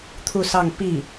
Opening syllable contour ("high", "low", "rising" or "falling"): falling